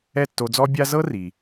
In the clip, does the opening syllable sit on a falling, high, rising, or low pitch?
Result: falling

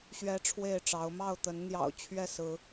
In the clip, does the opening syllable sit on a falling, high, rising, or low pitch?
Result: high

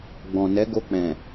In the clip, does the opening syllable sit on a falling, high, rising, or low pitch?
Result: low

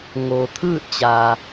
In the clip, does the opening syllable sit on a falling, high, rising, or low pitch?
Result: low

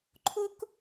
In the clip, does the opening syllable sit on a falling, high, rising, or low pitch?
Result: high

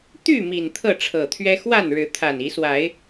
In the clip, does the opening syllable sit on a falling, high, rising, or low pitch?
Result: falling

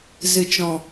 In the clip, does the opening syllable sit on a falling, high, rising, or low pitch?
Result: low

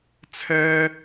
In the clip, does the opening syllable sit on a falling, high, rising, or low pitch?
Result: high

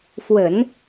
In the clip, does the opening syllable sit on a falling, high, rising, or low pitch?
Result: low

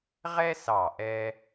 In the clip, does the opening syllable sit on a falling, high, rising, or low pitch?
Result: high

